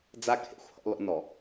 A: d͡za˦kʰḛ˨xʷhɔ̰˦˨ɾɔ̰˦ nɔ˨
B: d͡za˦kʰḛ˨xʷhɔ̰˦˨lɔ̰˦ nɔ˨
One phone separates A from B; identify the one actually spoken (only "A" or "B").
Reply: B